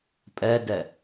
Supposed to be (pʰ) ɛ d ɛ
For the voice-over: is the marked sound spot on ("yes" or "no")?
no